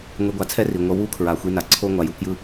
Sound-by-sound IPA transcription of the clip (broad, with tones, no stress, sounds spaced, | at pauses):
ŋʷ i˧ ɡʷ a˧ t͡sʰ ɛ˦ r i˨ ŋʷ ʌ˧ w u˦ kʰ ɹ a˨ xʷ i˧ n a˨ ǀʰ o˦ ŋʷ a˨ j u˧ k j ɯ˦